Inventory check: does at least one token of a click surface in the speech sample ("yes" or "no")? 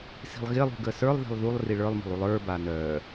no